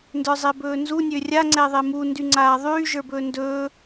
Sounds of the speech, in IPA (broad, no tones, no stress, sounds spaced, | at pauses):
n d ə˞ zˤ e b ɵː n z u nʲ ø rʲ a ŋ͡ǀ ɛ ðˤ e m u n d y ŋ͡ǀ aː ðˤ yː ʒ ə˞ b ɵː n d ɵː